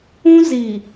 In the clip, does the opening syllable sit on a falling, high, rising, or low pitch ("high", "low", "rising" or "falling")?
high